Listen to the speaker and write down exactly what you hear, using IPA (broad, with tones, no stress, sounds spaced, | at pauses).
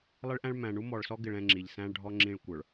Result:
lˠ ɪ˦ ɭ ʔ æ̃˦ ɭ m æ̃˨ ɳ u˦ m ɔ˨ ɭ s ɔ˦ ɡ ɪ˨ ɭ ɛ̃˦˨ ŋ͡ǁ i˨ ʎ s æ̃˦ ɭ ɖʱ ɔ˦ ŋ͡ǁ ĩ˦ ɭ kʷ ə˞˨ ɭ